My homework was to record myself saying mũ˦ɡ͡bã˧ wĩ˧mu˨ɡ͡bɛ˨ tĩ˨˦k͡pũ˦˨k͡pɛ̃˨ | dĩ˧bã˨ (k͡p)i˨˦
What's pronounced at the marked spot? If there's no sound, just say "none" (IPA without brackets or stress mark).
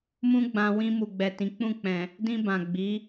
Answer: ɡ͡b